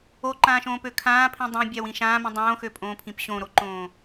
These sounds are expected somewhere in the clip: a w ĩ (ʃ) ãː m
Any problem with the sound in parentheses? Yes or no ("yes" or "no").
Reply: no